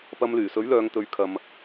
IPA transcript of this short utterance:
p ɐ˧ m l yː˨˩ s ɵ˨˥ ɥ l œː˨˧ ŋ t̪ ɵ˨˥ ɥ kʰ ɐ˧ m

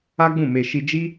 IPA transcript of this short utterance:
a˦ ɡ͡b ũ˦˨ m e˧ ʃ i˧ d͡ʒ i˦

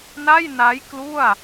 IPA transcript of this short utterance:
n a˥˩ j n a˦˥ j k l u˥˩ a̯

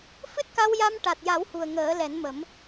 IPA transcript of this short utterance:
f ɨ˦˥ t̚ k a˧ w j a˧ m ʈ a˨˩ t̚ j a˨˩˦ w h u˨˩ ə̯ ŋ əː˨˩˦ l ɛ˨˩˦ n m ə˨˩˦ m

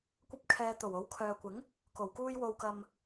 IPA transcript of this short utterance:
kʷ ɐ˥ p̚ kʰ ɛː˧ t̪ o˨˩ w o˨˥ w kʰ œː˨ kʷ ɪ˨˥ ŋ | k o˨˩ w k uː˧ j w o˨ w k ɐ˨ m

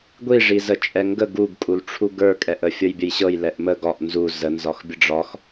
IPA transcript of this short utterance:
ɡʷ i ʐ i z ə t͡ʃʼ ɛ ŋ ɡ ə ɡ u ɡ kʼ u l ʈ͡ʂʰ u ɡ ə˞ kʼ ɛ ʔ ə fʲ ɤ j bʲ ə j ɕ ɤ j l ɛ ʔ m ə ɡ ɒ ʔ n z u z ə n z ɒ x bʲ ə ɖ͡ʐ ɒ x

